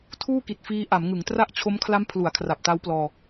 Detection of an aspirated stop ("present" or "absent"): present